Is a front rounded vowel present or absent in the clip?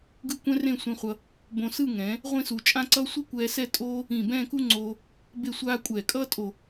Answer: absent